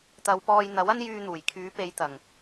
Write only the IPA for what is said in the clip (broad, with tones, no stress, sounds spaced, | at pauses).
t̪ ɐ˨˧ w p ɔː˧ j n̪ ɐ˨˥ w ɐ˥ n j yː˧ n̪ uː˨˩ j kʰ yː˨˥ p e˨˧ j t̪ ɐ˨˩ ŋ